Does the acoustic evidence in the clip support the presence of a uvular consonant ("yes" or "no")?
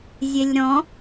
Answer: no